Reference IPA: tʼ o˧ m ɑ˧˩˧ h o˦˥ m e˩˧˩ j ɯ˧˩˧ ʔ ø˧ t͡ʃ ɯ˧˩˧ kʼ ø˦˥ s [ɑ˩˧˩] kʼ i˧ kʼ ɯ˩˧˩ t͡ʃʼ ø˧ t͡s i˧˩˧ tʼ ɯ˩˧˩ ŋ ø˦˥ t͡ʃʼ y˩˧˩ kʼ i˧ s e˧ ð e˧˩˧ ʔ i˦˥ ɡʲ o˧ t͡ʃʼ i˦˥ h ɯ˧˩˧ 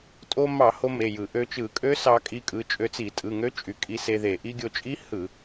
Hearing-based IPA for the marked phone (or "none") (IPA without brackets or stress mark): ɑ˧